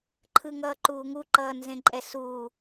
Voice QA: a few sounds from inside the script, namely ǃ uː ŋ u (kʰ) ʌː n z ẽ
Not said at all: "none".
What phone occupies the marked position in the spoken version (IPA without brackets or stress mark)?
ǃ